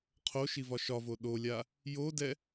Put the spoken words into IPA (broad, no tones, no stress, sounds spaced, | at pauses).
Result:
qʰ o ʃ i v ɒ ʃ ɒ v o ɗ o lʲ a | j o d ɛ